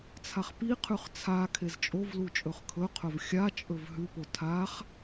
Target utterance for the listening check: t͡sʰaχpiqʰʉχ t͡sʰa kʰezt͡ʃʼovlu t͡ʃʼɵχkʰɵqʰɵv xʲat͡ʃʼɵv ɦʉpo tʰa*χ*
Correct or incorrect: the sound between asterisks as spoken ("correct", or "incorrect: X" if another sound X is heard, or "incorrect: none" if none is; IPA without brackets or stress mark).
correct